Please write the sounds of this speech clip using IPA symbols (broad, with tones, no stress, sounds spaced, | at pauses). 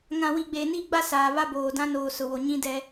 ŋ ã˨ w i˨ ɡ͡b e˨ n i˦˨ ɡ͡b a˦ s aː˨ β a˦ b oː˨ d ã˦ n oː˨ s ʊ˨ w o˨ ɲ ĩ˦ d ɛ˦